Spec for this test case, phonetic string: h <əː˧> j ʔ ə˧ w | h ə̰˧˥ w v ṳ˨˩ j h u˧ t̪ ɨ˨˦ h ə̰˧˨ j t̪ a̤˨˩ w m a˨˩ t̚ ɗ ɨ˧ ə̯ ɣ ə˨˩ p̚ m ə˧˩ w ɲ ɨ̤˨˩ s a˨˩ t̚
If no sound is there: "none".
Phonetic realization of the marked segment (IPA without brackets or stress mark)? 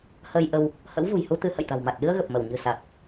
əː˧